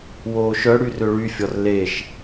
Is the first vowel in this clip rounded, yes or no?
yes